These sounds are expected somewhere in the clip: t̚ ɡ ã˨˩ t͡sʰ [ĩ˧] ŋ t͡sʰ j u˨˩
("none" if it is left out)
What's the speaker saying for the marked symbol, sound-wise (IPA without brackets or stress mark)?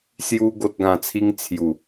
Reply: i˧